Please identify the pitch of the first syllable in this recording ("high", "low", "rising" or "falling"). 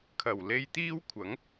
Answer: low